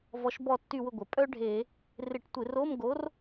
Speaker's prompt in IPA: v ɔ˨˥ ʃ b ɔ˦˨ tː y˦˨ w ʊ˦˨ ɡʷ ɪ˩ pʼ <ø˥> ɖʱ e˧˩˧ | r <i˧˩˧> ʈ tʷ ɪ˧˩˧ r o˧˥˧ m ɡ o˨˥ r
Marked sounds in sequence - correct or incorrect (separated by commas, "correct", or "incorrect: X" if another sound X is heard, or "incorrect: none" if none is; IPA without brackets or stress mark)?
incorrect: œ˥, incorrect: ɪ˧˩˧